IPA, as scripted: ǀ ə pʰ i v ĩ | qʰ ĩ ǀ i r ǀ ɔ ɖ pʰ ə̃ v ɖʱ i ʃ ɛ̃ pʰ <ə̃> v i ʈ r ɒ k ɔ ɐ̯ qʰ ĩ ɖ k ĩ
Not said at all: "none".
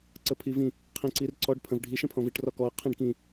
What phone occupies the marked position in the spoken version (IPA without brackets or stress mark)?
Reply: ɔ̃